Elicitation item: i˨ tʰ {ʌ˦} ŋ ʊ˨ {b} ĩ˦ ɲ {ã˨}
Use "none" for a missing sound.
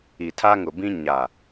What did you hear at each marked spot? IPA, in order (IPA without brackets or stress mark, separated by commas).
a˦, b, a˨